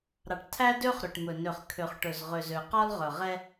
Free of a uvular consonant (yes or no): no